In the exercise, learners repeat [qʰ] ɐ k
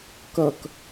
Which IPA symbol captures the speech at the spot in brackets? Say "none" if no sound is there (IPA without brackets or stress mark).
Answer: k